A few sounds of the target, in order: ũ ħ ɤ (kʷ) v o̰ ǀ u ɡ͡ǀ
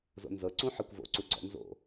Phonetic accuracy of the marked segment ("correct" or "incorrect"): correct